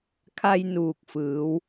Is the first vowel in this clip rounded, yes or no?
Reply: no